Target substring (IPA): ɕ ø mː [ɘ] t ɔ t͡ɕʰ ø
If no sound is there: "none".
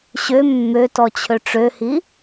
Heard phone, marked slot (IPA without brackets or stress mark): ø